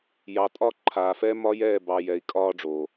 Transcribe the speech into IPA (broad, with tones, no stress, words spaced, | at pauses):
jɑ˨tʼɒ˦ ǃʰaː˨fɛ˦mɒ˦jɛː˦˨ bɑ˨ jɛ˨i̯kʼɒː˦ɖ͡ʐoː˨